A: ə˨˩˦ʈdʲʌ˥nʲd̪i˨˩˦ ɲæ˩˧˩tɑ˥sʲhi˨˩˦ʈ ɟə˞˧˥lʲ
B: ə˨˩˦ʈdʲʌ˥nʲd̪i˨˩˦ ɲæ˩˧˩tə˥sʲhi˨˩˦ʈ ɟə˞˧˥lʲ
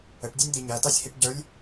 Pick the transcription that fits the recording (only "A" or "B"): A